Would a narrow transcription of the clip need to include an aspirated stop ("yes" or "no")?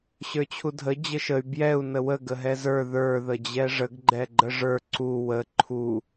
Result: yes